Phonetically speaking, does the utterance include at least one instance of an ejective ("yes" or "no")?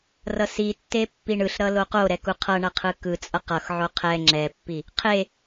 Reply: yes